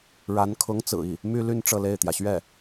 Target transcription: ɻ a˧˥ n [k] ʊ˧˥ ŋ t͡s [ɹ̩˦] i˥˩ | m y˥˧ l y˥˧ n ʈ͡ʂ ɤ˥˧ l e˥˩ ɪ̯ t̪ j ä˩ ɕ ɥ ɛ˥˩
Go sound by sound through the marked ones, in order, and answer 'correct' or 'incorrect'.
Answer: incorrect, incorrect

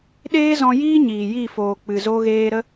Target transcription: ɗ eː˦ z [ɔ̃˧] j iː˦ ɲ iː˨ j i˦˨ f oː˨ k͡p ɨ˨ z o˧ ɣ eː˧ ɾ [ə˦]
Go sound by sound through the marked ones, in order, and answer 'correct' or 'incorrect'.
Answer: correct, correct

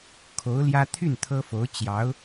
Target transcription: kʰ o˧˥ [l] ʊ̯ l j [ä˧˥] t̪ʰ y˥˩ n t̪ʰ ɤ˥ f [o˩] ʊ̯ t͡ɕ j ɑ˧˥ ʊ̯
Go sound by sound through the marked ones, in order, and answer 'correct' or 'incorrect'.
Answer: incorrect, incorrect, incorrect

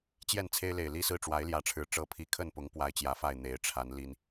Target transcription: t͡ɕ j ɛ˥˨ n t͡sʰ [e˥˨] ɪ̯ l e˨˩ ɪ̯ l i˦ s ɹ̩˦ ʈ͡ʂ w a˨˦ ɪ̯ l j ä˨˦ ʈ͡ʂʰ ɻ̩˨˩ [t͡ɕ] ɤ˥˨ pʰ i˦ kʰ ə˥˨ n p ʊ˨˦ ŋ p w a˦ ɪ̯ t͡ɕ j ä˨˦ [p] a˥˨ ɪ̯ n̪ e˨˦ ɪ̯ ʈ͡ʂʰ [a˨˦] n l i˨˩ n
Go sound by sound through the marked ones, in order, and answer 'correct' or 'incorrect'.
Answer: incorrect, incorrect, incorrect, correct

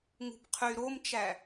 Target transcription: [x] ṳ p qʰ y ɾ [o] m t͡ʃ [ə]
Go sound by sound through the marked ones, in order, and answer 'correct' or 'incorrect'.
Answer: incorrect, correct, incorrect

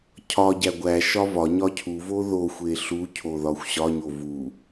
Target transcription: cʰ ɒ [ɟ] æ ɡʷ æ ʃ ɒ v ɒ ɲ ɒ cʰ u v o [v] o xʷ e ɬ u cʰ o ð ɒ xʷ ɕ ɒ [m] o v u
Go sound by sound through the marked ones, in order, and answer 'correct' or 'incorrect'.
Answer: correct, incorrect, incorrect

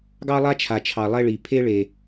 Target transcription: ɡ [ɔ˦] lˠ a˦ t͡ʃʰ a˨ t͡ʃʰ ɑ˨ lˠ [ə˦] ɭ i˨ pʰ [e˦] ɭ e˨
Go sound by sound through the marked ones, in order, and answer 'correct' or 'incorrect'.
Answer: incorrect, incorrect, correct

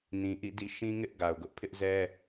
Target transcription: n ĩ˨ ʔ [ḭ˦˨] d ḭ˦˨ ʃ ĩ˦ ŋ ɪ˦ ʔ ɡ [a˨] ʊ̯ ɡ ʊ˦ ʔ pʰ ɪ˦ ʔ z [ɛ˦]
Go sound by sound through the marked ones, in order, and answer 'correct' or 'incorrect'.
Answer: correct, correct, correct

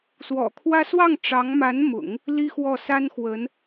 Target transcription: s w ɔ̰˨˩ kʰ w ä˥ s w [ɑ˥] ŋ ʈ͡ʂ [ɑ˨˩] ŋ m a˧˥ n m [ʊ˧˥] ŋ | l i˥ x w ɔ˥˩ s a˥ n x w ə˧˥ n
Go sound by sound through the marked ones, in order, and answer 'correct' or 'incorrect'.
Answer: incorrect, incorrect, incorrect

